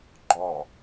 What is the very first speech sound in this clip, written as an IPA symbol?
ɡ͡ǃ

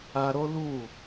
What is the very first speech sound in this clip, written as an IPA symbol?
a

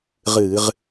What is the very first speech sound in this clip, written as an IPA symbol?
ʁ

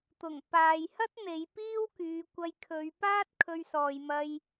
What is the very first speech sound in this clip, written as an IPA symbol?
t̪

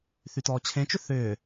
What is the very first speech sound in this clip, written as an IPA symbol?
θ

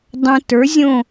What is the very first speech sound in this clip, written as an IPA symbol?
dˤ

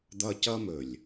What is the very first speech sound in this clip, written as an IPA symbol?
d̪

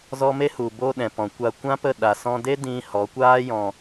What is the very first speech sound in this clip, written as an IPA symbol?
z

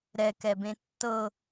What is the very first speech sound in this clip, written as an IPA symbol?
ɾ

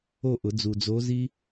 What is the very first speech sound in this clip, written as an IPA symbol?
o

